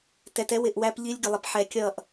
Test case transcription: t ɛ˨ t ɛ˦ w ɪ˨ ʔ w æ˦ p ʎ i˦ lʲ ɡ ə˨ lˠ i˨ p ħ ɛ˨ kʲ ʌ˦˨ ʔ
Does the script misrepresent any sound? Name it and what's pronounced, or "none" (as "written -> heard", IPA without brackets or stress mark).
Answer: none